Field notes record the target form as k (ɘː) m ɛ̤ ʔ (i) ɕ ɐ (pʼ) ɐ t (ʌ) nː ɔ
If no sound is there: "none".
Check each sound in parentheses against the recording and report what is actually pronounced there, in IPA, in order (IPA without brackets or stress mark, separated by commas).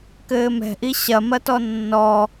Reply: ɘː, i, m, ɔ